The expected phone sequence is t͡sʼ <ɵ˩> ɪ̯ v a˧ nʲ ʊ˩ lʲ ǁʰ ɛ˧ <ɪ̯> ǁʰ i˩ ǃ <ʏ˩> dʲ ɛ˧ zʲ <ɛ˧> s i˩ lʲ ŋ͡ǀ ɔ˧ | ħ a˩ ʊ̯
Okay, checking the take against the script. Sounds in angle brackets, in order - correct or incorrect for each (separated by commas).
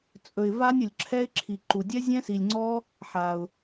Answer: correct, correct, incorrect, incorrect